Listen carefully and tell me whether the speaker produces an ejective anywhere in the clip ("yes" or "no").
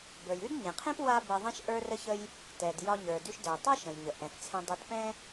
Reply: no